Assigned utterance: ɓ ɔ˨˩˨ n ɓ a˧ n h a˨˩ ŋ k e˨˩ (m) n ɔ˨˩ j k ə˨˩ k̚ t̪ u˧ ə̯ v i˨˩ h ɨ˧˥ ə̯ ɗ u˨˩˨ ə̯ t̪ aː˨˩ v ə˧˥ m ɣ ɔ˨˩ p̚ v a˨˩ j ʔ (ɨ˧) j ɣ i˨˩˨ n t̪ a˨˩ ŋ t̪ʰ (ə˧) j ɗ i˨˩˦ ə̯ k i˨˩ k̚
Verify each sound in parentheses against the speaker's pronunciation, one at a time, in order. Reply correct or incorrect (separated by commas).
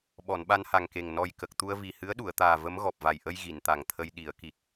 incorrect, incorrect, correct